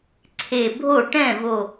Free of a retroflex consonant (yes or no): no